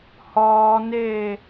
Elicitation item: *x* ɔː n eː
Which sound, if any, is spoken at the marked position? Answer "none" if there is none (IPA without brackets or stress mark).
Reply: h